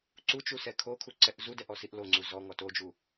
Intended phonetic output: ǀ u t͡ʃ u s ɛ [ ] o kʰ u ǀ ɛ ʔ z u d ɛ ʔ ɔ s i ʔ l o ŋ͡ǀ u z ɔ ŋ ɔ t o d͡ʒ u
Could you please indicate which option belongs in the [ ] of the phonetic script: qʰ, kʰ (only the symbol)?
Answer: kʰ